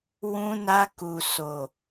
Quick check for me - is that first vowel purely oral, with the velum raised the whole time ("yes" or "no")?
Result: no